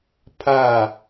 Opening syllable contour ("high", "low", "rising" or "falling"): falling